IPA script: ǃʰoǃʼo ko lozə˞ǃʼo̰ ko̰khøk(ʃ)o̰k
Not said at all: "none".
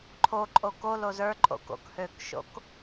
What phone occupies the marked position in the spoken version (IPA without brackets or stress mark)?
ʃ